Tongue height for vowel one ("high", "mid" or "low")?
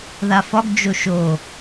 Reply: low